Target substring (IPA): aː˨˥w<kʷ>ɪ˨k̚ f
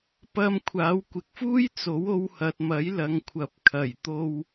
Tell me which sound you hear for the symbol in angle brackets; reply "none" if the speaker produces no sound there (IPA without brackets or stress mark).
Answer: kʷ